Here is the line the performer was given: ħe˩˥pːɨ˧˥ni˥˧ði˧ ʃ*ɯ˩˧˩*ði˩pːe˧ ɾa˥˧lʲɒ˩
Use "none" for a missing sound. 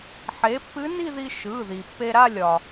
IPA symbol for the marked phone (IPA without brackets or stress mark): ɯ˩˧˩